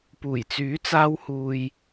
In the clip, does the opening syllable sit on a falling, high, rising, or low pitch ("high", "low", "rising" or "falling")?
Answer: low